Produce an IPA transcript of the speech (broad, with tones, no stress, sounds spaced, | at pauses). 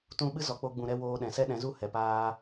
t ũ˧ ɓ ɨ˦ z ɔ˨ k͡p o˧ ɡ͡b ũ˨ ɾ ɛ˧ w oː˧ ɗ ɛ̃˨ s ɛ˦ ɗ ɛ̃˨˦ z u˦ h ɛ˨ p aː˦